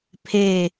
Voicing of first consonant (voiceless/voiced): voiceless